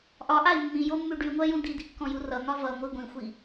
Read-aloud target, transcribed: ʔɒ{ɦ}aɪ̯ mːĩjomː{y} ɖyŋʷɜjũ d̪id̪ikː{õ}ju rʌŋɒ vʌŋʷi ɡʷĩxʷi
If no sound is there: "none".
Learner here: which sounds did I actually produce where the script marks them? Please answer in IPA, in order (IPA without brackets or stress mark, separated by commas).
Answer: ʔ, y, ɔ̃